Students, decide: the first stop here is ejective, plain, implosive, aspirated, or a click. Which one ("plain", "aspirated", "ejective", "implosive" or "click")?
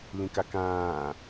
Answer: plain